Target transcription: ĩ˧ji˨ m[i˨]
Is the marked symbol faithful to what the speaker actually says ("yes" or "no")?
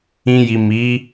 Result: no